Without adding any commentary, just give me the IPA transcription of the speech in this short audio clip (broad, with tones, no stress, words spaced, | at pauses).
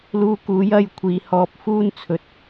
luː˧kuː˨˥j ɐ˧j kʷʰiː˨˧hɔː˧p̚ fuː˥nt͡sʰɵ˨t̚